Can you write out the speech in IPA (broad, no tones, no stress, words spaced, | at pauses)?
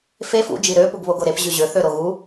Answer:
fe fṵd͡ʒi ɾøpuɡ βoɡoɾep ʑyʑøθø ɾoɣu